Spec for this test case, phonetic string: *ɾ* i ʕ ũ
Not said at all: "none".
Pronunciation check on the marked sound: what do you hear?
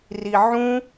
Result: r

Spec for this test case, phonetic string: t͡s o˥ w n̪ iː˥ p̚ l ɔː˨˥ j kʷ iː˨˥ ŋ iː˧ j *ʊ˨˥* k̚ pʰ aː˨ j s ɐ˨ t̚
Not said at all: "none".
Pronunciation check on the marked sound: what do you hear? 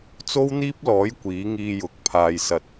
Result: ʊ˨˥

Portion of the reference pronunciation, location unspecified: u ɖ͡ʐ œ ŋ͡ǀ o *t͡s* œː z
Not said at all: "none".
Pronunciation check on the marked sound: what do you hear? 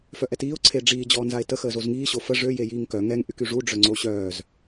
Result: ɕ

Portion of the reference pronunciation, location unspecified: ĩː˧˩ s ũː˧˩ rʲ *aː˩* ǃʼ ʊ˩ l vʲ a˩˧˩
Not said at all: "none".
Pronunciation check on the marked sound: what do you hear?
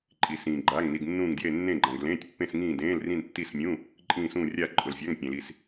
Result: aː˧˩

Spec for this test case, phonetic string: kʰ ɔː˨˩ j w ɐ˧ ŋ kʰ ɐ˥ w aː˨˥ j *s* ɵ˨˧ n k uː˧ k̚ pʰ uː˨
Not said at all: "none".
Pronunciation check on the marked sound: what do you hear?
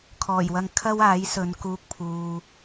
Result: s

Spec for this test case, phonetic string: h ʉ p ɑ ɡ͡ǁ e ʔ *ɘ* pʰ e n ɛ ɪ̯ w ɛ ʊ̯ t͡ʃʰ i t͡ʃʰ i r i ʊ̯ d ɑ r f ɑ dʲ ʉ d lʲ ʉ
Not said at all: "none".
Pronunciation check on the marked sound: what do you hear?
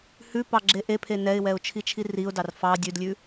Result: e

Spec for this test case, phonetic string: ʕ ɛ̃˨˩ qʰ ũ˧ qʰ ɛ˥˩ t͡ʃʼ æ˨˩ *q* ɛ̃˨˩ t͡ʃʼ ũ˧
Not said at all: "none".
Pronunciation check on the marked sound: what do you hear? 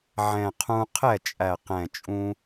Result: q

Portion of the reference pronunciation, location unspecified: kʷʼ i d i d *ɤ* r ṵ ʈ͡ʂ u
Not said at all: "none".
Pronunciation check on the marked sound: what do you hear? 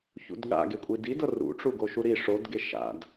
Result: ɤ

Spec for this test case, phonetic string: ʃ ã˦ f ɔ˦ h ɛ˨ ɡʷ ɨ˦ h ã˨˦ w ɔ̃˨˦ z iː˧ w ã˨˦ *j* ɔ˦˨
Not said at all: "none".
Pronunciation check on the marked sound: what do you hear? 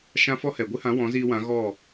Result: ɣ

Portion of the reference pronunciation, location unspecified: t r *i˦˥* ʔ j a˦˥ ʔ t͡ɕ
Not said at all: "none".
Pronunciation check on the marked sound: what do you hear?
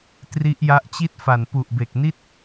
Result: i˦˥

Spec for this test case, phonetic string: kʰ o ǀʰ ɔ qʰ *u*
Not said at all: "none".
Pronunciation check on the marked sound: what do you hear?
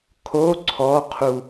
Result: u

